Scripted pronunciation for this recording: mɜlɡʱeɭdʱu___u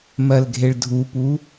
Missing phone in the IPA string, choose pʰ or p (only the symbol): p